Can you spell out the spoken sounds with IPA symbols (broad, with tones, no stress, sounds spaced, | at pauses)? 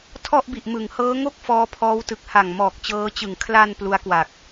tʰ ɔ˥˩ ʔ b i˨˩ ʔ m ɯ˩˦ ŋ h ɤː˦˥ ŋ o˥˩ k̚ f ɔː˦˥ pʰ ɔː˦˥ w t ɯ˨˩ k̚ h a˨˩ ŋ m ɔː˨˩ k̚ t͡ɕ ɤː˦˥ t͡ɕ ɯ˨˩ ŋ kʰ l a˧ n p l u˦˥ a̯ k w a˨˩ k̚